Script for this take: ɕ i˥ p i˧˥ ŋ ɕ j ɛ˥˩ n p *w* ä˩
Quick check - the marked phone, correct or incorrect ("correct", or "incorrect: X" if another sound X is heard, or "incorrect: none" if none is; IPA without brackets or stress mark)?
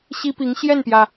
incorrect: j